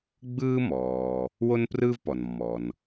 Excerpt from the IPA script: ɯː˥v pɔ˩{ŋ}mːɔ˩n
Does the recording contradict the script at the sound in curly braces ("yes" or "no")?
yes